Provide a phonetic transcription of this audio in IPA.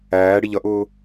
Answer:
æː ɽ i ʎ ʌ ʔ ʊː

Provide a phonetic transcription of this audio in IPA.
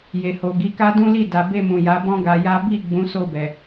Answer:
j e˨ h o˨ ɡ i˨˦ k a˦ d ũ˦ l i˦˨ d a˨ b e˧ m ũ˨ j a˨˦ b ɔ̃˦ ɡ a˧ j a˦ b i˦˨ ɡ͡b ũ˨˦ s o˧ b ɛ˨

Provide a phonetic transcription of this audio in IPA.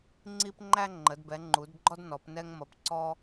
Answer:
ŋ͡ǀ i˧ p ŋ͡ǃ æ˧ ŋ͡ǃ ə˩˧ d b ɛ˩˧ ŋ͡ǃ u˩˧ d ɡ͡ǃ ɔ˧ d n ɔ˩˧ p n ɛ˧ ŋ m ʌ˩˧ p ǀ ɔ˧

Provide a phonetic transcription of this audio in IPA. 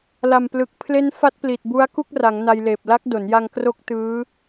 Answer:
l a˨˩ m p l ɯ˨˩ k̚ pʰ l e˦˥ n f a˦˥ t̚ p l i˨˩ t̚ b u˦˥ a̯ k u˥˩ k̚ r a˩˦ ŋ n a˧ j l eː˨˩ p̚ l a˦˥ k̚ d o˩˦ n j a˧ ŋ k r o˦˥ k̚ t ɯː˦˥

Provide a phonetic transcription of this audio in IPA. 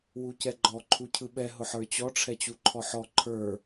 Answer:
w u c ɛ ɡ͡ǃ ɔ ǃʰ u cʰ ɯ ɓ ɛ ɦ ʊ ħ ə˞ t͡ɕ ɔ ʈ͡ʂʰ ɛ t͡ɕ u ǃʰ ɔ ħ ɔ ǃʰ ə˞

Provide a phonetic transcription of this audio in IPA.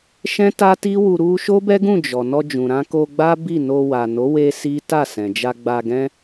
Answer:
ʃ ɛ̃˦ t a˦ t i˦ w u˧ ɾ u˧ ʃ o˦ b ɛ˦ ɡ ũ˦˨ d͡ʒ ɔ˨ n ɔ˧ d͡ʒ ũ˨ ɾ ã˧ k o˧ ɡ͡b a˦ b i˦˨ n o˧ w a˨ n o˨˦ w e˧ s i˦ t a˦˨ s ɛ̃˨ d͡ʒ a˧ ɡ͡b a˧ ɡ ɛ̃˦

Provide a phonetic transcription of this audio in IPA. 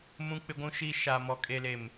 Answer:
m ũ˦ k͡p ɪ˦ ɡʷ ũ˦ ʃ iː˦ ʃ a˨ m ɔ˨ kʼ e˨ l e˨ m

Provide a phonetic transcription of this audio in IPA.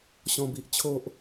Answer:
ɕ ɔ̃˥˧ b i˦ ʔ t͡ɕʰ o˦ ʔ

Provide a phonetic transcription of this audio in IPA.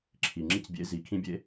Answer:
ǁʰ i˨ ŋ͡ǁ i˧ c bʲ ḛ˨˦ z i˨ kʰ ĩ˧ bʲ ḛ˧

